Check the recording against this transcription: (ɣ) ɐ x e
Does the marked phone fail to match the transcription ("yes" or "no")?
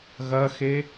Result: no